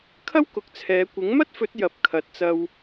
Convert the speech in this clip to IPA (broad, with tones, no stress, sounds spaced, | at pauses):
kʰ ɐ˥ w k ʊ˨˥ k̚ t͡sʰ ɛː˨˧ kʷ ɪ˨˥ ŋ m ɐ˥ t̚ f ɵ˨˥ t̚ j ɐ˨˥ p̚ kʰ ɐ˨˥ t̚ t͡s ɐ˧ w